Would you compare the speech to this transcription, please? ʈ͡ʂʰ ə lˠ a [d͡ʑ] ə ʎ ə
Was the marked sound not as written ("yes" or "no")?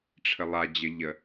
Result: no